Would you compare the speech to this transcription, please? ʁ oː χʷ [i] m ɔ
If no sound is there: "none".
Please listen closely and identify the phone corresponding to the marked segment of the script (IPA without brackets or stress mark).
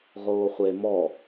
e